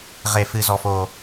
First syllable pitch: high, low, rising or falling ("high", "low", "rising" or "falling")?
low